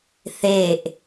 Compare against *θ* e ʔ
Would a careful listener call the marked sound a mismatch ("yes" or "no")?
no